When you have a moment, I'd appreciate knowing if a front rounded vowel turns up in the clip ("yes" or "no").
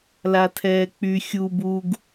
yes